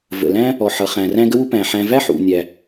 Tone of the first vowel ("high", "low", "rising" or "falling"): low